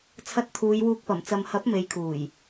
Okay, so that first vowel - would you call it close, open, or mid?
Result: open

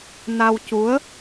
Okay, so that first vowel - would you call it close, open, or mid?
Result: open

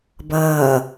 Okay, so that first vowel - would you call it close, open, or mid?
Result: mid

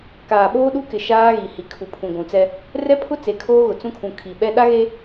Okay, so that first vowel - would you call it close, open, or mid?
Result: open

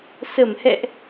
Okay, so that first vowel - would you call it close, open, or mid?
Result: mid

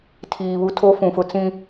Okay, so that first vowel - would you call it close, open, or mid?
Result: close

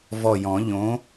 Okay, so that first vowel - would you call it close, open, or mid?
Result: mid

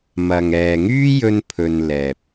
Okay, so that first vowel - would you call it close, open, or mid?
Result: open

